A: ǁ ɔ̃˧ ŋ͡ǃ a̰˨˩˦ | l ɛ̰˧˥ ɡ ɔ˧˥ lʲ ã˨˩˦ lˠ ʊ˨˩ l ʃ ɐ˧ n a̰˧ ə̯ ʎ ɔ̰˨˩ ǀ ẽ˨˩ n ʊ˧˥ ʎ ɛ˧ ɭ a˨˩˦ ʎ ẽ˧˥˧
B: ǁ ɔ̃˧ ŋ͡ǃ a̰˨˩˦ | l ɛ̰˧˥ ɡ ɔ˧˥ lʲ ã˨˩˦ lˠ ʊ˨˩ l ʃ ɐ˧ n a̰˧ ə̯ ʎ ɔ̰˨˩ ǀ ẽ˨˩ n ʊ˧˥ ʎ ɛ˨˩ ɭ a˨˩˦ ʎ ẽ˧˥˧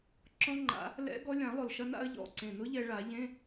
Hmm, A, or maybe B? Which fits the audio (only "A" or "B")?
A